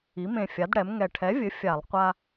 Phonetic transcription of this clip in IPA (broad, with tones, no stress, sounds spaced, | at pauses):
i˩˧ m ẽ˨˩ fʲ a˩˧ d ɽ ɛ˩˧ m ŋ ɛ˨˩ ʈʰ ɛ˨˥ vʲ ɘ˨˥ fʲ a˧˩˧ lˠ qʷ a˦